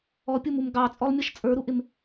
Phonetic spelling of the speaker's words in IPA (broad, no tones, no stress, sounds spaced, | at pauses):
ɔ pʲ u m u m ɡ ɑ t͡sʼ ɔ lˠ mʲ ʌ ʃ t͡sʼ ə˞ ɾ u ʔ ɪ m